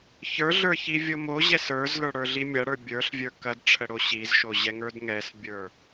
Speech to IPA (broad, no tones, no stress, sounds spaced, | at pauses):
ç ə˞ ɮ ə˞ ç i vʲ o m o ʑ ɛ s ə˞ z l ə˞ ɽ ə˞ ɮ i mʲ ɐ ɽ ə˞ bʲ ə˞ ɬ vʲ ə˞ k ɐ d ʈ͡ʂʰ ə ɽ o ɕ i z ʃ o ʑ ɛ ŋ ə˞ d ŋ ɛ s bʲ ə˞